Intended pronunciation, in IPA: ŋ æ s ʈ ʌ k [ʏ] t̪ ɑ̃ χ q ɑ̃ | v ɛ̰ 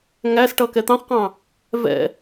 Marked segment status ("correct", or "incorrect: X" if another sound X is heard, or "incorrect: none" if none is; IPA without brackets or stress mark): incorrect: ɛ